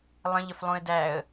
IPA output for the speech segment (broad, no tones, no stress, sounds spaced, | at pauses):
lˠ ə̃ ʎ ə f lˠ ũ ɪ̯ d æ ə̯